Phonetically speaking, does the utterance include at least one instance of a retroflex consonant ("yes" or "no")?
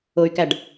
yes